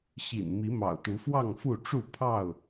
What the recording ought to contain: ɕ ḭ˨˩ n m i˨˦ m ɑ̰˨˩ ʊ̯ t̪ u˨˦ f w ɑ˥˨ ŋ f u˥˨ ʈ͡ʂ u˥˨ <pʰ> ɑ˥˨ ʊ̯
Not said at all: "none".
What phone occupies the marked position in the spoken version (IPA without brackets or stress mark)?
pʰ